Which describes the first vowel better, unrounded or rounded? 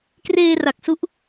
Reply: unrounded